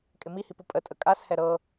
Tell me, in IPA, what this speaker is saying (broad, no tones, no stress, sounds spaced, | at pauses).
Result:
kʼ ɪ m i h i p u pʼ ə tʼ ə kʼ a s h ɛ ɾ ɤ